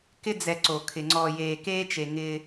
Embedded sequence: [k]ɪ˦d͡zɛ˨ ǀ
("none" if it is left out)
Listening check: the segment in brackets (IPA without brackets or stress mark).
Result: k